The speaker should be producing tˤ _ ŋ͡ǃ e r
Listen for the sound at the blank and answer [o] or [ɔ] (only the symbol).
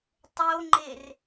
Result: o